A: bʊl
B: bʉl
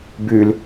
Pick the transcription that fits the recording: B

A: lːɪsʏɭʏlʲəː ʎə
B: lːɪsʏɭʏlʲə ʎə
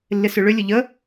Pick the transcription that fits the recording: B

